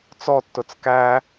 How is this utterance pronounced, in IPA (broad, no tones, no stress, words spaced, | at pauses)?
t͡sɔtːʊt͡s kæ